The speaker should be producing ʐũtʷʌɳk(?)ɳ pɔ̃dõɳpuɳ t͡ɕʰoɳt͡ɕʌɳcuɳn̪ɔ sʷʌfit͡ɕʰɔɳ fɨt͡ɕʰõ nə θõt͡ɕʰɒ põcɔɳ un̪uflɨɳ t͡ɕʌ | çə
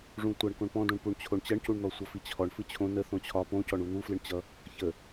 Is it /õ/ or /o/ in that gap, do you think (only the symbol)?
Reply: õ